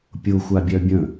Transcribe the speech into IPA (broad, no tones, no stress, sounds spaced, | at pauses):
pʲ ʊ xʷ a bʲ œ bʲ ə̃